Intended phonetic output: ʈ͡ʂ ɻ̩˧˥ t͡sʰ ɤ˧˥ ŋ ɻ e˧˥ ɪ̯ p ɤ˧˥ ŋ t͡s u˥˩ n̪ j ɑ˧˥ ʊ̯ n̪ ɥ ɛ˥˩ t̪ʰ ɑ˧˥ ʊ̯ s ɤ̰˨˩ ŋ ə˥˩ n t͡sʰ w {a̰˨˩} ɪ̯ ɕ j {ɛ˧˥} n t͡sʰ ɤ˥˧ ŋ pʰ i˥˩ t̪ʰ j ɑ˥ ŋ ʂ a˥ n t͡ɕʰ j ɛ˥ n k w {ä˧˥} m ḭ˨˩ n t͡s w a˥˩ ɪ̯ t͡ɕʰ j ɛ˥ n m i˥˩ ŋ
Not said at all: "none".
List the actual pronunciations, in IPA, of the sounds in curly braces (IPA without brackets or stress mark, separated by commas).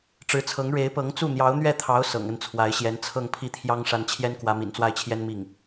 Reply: a˧˥, ɛ˧˥, ä˧˥